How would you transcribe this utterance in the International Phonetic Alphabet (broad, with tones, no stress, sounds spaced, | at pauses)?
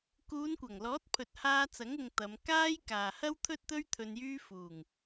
k uː˨˧ n kʷ ɐ˨˩ ŋ l ɔː˨˥ t̚ pʰ ɵ˨ t̚ h aː˧ t͡s ɐ˨˥ ŋ ʊ˨ ŋ t̪ ɐ˨˧ m k aː˥ j k aː˨ h ɐ˥ w t̪ʰ ɵ˥ t̚ t̪ ɵ˥ ɥ t̪ʰ ɵ˧ n j yː˥ f uː˨˩ ŋ